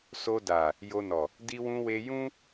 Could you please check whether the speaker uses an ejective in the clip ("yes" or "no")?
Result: no